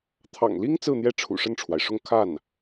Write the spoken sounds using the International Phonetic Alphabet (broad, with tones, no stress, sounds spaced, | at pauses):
t̪ʰ ɑ̰˨˩ ŋ l i˥ ŋ t͡s ɹ̩˥˧ n̪ j ɛ˥˩ ʈ͡ʂʰ ṵ˨˩ ʂ ə˥˩ n ʈ͡ʂʰ w a˩ ɪ̯ ʂ ʊ˥˧ ŋ kʰ a˥˩ n